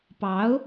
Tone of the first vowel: rising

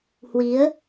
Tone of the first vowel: rising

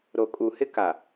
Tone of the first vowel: low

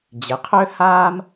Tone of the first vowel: rising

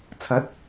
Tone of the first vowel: rising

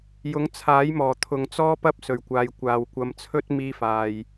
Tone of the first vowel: rising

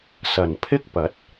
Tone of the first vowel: low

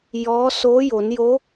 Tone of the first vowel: rising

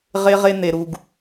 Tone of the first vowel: high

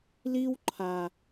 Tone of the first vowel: high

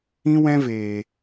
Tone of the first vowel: high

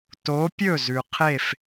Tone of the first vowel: rising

